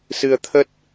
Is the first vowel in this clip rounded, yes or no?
no